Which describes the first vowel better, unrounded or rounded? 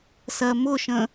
unrounded